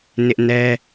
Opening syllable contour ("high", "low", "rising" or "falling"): high